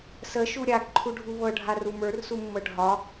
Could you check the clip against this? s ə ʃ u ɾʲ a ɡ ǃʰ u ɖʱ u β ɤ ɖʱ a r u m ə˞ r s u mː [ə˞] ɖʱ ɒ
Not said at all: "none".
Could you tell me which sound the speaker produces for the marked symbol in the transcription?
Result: ɤ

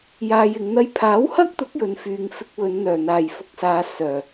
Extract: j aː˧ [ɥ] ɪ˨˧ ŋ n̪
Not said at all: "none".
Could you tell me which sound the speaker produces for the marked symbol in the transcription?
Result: j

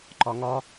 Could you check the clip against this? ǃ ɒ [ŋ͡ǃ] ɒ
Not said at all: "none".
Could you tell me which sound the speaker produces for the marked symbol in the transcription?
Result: ŋ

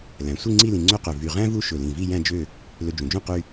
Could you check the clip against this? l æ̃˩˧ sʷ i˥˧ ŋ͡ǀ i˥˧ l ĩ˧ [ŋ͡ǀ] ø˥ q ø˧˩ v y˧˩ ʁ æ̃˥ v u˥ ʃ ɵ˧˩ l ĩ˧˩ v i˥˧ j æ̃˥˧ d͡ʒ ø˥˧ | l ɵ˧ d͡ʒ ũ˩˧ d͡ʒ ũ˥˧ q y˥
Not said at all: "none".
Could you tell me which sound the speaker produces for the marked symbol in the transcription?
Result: ŋ͡ǀ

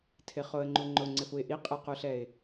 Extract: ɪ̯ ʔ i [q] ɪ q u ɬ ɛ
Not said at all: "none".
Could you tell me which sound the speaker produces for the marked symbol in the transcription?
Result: qʼ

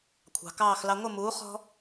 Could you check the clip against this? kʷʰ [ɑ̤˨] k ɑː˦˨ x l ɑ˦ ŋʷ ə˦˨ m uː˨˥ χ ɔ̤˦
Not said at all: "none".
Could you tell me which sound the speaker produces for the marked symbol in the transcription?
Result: ɑ̤˨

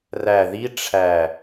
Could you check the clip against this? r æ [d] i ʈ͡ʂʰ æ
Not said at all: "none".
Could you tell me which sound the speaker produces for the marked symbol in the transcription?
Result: ð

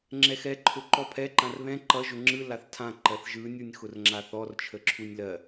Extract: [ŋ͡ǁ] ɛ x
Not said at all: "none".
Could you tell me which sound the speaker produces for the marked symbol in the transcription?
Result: ŋ͡ǁ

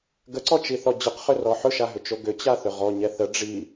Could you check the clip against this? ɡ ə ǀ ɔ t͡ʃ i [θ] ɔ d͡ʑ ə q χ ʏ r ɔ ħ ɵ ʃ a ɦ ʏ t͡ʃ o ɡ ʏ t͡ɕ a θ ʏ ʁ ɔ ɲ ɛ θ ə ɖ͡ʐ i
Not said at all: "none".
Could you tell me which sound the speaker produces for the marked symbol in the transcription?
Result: θ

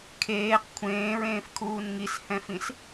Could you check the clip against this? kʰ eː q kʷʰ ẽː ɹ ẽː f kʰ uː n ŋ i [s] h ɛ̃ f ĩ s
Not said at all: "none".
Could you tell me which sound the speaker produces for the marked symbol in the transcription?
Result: s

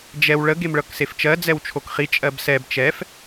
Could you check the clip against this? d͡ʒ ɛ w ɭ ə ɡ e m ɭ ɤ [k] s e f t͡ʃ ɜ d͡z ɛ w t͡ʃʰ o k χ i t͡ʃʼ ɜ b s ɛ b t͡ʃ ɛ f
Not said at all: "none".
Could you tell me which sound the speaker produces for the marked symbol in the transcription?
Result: k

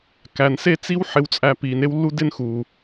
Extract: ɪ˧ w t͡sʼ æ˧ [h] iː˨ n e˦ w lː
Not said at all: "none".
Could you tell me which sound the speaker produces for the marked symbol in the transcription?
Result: p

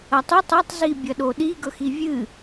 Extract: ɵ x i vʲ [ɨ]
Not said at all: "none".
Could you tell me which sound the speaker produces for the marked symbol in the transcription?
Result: ɨ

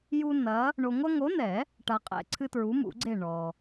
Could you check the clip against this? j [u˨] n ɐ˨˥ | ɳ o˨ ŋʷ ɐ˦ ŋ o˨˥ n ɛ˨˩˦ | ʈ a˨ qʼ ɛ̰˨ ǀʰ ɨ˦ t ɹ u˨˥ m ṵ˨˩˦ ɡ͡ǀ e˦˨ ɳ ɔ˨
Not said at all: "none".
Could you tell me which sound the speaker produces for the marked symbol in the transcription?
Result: u˦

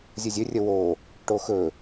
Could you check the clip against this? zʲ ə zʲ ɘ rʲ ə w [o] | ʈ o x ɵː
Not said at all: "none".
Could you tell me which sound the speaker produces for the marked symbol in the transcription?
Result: oː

